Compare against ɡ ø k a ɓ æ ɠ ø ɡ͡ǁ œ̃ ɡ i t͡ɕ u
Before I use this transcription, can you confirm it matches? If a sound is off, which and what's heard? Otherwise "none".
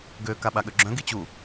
æ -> a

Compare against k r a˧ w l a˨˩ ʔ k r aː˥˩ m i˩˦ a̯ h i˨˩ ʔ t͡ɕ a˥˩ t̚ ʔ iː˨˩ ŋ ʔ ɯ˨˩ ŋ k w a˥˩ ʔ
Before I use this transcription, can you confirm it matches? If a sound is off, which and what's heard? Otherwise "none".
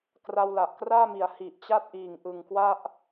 none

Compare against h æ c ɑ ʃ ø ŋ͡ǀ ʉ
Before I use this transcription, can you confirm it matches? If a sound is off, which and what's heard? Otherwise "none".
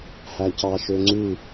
none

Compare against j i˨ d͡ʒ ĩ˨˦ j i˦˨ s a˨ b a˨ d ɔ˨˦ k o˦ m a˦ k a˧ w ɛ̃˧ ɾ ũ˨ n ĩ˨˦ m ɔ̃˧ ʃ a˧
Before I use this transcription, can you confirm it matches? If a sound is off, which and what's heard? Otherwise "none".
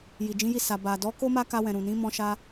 ɛ̃˧ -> ɛ̃˨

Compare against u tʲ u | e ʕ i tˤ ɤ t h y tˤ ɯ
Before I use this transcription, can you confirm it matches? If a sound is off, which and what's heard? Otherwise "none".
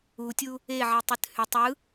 ɤ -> ɯ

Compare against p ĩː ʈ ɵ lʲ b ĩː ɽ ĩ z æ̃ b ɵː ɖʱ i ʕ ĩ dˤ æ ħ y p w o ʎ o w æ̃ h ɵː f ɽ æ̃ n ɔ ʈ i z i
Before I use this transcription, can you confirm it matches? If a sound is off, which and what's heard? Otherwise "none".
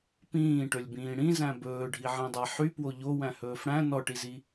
none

